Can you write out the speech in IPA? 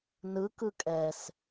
n ɯ k ɯ kʼ ɛ s

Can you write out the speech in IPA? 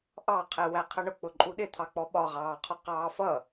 ʔ ɑ qʰ ɛ w æ qʰ ʌ ɳ ʊ k͡p ʊ ǃʼ u ɗ ɪ t̪ʰ ɑ k͡p ɔ ɓ ɒ ʁ ɑː qʰ ɒ q ɑː f ʌ

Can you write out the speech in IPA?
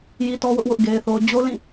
j i˦ t ɔ˦ w ʊ˦ ʔ w ʊ˦ ʔ ɡ e˦ ɪ̯ θ o˦ ʊ̯ d͡ʑ o˦ l ĩ˦˨

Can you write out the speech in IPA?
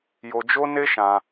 j o˧ d͡ʒ o˦ n e˦ ʃ ã˧

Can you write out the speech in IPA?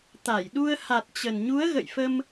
t̪ a˧˩ j ɗ u˧ ə̯ h a˨˩ t̚ t͡ɕ ə˨˩ n ɲ u˨˦ ə̯ ɣ ə̰˧˨ j f ə˧ m

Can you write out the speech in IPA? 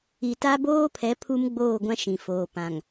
i˨ t a˦ b oː˦ pʰ ɛ˨˦ pʰ u˦ m ɡ͡b oː˦˨ ɡʷ ã˦ ʃ ĩ˨ f oː˨ p ã˨ ŋ

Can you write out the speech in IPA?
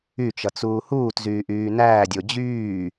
y t͡ʃ ʌ t͡s uː h uː t z yː ʔ yː n æː dʲ o d͡ʑ yː

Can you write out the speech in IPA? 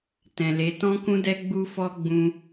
t ɛ̃˨ l e˨˦ t ɔ̃˦ k ũ˦ d ɛ˦ ɡ͡b u˧ f ɔ˧ ɡ͡b ũ˧

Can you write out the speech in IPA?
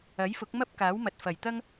ɐ˨˥ j f ʊ˨˥ k̚ m ɐ˥ p̚ k aː˨˥ w m ɐ˨ t̚ f ɐ˨˩ j t̪ ɐ˥ ŋ

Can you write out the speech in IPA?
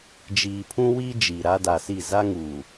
d͡ʒ iː˨ pʰ ũ˦ w iː˦ d͡ʒ iː˨ ɾ a˦ d a˨ s i˦˨ z a˦ ŋ uː˨

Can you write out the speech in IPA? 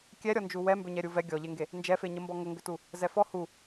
kʲ ɛ ɾʲ ɔ n d͡ʒ u w ɛ m b ʏ ɲ ɛ ɾʲ u v ɛ ɡʲ ɔ ʎ e ŋ ɡ e | n d͡ʒ ɛ f e ɲ ə m b ɔ ŋ ə ŋ ɡ ʏ t u | z ɛ f ɔ h u

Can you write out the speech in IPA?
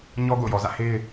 ɲ ɔ˦ ɡ o̰˦˨ ʊ̯ j ɔ˨ z ä̰˦˨ h e˦ ɪ̯

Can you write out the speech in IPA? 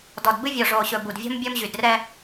d ɔ˨ d b ɨ˦ vʲ ɔ˨ ʐ oː˨ ɕ ɵ˨ b u˨ d vʲ ɔ̤˦ m bʲ ɔ˦ m ʑ y˨ d r ɛ˦

